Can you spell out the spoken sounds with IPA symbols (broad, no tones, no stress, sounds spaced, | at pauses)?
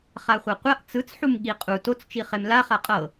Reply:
χ a χʷ a qʷ a ʔ t͡s ɯ t͡s ħ u m ɠ i qʼ u t o t͡s t͡ʃ i χ e m l a χ a qʼ ɤ